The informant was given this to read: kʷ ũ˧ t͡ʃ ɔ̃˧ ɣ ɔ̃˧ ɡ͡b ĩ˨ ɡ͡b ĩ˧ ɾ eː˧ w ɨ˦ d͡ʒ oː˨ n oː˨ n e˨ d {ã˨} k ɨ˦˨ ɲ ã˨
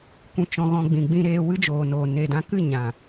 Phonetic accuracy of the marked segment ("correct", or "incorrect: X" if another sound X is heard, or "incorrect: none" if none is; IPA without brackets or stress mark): incorrect: ã˧